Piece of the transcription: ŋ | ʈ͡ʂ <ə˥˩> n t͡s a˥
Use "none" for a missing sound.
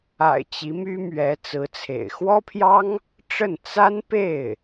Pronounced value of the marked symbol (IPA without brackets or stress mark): ə˥˩